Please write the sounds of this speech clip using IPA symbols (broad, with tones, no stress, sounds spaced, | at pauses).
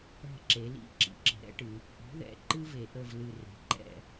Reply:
ɛ̤˦˨ ǁ e˩˧ l ḭ˦˨ ǁ ḭ˨˥ ǁ ə̤˩˧ ɾ ɛ̰˥ ʈ ɨ˩˧ | ʔ i̤˨˥ ð ɛ̰˨˥ ǃ ɨ˥ v e˩˧ ʔ ə˦˨ v l ɨ˦˨ r e̤˨˥ ǃ ɛ̰˦˨